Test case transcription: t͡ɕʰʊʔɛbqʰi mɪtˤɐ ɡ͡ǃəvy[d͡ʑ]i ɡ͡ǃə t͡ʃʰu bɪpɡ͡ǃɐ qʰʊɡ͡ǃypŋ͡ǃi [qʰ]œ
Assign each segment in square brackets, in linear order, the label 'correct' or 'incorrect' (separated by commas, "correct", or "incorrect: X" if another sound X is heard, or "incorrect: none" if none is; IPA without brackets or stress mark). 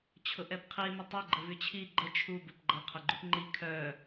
incorrect: t͡ɕʰ, incorrect: kʰ